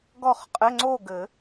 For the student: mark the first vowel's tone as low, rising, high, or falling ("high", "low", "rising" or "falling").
falling